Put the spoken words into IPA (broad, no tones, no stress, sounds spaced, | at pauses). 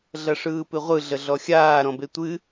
ɮ ɐ ʂ ɯː p ɨ ʁʷ ɯ ɮ ə ɮ ɔ xʲ aː ɾ ɔ̃ b e tʷ ɨ